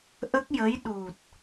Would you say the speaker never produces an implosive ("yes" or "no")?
no